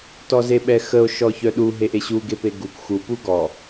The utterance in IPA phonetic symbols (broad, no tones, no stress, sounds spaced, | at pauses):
t ɔ z e ɓ ɛ x ə o̯ ʃ ɔ ç œ ɗ u ɦ e ʔ e ɕ u ɡ e p e ɡ u k x u p u ɡ ɔ